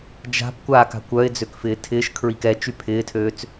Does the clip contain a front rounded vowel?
yes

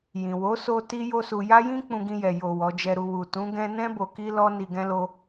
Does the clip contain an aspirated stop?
no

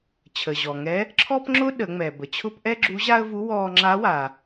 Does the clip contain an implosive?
yes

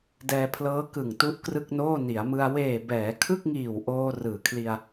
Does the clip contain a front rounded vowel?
no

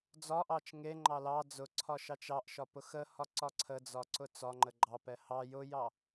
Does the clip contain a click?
yes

